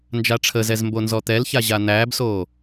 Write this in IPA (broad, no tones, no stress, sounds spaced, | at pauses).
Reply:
n d͡ʒ a ʈ͡ʂʰ ə z ɛ z m b o n z ɔ t̪ ɛ l ç a ʑ a n̪ æː b s oː